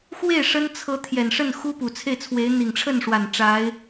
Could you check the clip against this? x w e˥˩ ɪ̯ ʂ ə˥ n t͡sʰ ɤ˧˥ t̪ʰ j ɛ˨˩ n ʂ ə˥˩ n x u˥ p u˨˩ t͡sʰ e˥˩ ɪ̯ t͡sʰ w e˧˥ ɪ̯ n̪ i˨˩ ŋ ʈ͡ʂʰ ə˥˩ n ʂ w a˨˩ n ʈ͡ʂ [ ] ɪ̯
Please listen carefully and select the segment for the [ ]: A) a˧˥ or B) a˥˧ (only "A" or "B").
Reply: A